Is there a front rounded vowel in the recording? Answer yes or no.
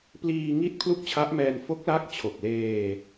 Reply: no